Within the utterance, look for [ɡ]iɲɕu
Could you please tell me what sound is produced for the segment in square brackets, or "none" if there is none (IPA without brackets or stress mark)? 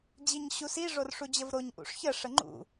d͡ʑ